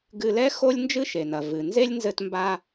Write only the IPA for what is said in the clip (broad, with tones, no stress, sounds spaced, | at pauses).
ɡ ɨ˧ l ɛ˥ x o˥ lʲ n d͡ʒ ɨ˥ ʃ e˩ n ɐ˩ v ɨ˩ n z e˥ lʲ n z ɘ˧ t m b a˧